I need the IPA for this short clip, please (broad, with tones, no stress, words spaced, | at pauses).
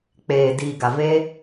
k͡peː˨ diː˨ɡa˨ ve˦